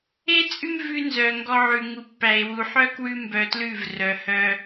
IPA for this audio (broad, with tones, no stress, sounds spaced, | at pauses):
e˦ t͡sʼ ʉ˦ m v ʉ˧ n z œ˨ ŋ ɡ ɔ˧ ʕ ʉ˨ ŋ u˨ pː æ˨ e̯ w u˨ ħ œ˦ k w ʉ˦ m b œ˧ t l ʉ˦˨ v r œ˨ h œ˧